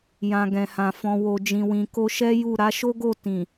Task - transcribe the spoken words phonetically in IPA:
j ã˨ ɡ ɛ̃˨ h ã˨ f ɔ̃˨ w o˨ d͡ʒ ĩ˨ w ĩ˨ k o˧ ʃ ɛ˦ j u˦˨ ɾ a˨˦ ʃ o˦ ɡ o˦˨ t ĩ˨

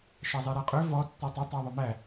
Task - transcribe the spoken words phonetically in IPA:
ʃ æ zˤ i ɾ æ qʼ ø v ɔ tː ɔ tˤ o tˤ æ ðˤ ɵ m æ

